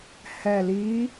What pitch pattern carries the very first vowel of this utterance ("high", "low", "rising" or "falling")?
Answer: low